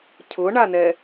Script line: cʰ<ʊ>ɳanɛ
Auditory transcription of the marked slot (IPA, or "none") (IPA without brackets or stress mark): ʊ